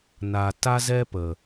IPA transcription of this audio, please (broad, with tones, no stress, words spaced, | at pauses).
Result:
na˨ ta˦zɛ˦pə˨